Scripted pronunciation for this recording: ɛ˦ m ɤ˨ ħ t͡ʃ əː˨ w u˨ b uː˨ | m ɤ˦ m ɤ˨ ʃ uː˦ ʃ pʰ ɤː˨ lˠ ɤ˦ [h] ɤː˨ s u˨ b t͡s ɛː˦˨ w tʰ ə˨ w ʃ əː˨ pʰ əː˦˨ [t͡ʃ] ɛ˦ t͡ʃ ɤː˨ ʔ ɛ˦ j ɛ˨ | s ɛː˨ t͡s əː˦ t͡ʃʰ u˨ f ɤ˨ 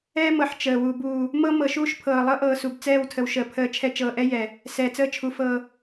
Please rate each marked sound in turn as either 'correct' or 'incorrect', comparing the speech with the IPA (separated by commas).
incorrect, incorrect